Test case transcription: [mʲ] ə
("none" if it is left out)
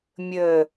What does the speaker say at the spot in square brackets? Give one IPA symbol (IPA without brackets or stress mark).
mʲ